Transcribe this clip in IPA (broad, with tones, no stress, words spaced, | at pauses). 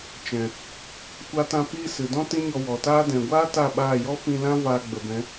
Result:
t͡ʃɛ̃˨ | kʷa˧tã˧ piː˧ sɨ˨dɔ̃˦ tĩ˦ɲɔ˧wɔ˨taː˦ dɛ̃˨ɡʷaː˦ ta˦˨ɓaː˦˨ jɔ˦fĩ˧lã˦ vaː˧ɡ͡bə˨bɛ̃˨˦